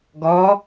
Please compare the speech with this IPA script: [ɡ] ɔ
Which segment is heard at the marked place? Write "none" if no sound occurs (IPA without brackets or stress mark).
ɡ